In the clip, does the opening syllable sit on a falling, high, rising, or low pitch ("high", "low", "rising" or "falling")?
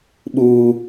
high